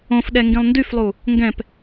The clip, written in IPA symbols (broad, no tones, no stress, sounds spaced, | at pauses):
õ f ɗ ɛ ŋ ɡ ĩ lˠ n d y f lˠ u | ŋ ɡ ɛ̃ p